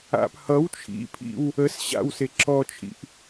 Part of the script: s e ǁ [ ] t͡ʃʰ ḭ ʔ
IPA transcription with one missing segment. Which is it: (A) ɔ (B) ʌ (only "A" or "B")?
A